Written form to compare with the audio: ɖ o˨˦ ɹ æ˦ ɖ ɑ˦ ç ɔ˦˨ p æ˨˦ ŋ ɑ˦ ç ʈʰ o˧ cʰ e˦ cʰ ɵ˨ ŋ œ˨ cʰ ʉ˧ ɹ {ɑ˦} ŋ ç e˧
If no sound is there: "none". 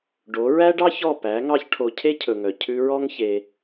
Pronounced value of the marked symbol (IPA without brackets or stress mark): ɔ˦